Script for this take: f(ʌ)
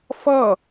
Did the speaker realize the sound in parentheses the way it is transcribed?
yes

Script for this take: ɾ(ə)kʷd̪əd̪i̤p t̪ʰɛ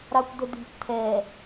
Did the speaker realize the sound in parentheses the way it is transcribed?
no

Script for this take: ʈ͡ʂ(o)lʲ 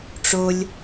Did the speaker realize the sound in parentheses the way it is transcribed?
yes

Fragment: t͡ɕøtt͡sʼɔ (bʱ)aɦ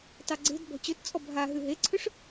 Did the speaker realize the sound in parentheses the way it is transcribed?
yes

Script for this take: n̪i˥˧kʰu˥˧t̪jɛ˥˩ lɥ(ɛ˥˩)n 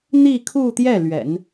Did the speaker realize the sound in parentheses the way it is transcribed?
no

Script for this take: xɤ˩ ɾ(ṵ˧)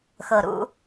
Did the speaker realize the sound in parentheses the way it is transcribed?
yes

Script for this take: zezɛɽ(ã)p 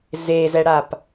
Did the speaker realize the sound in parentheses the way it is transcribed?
no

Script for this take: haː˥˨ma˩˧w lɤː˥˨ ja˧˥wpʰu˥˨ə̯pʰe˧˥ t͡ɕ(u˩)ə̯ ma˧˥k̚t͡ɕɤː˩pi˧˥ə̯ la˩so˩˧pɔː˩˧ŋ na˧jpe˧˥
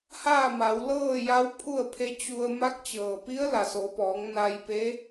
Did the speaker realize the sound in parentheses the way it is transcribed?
no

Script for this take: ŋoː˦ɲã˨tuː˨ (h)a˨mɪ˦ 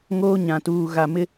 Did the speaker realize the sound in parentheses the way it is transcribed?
no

